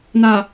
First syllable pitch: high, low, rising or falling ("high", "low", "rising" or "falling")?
low